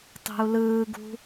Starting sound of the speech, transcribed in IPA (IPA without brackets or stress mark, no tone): tˤ